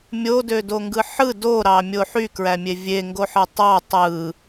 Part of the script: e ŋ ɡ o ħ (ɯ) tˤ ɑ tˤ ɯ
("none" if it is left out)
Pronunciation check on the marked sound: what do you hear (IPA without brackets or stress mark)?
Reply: ɯ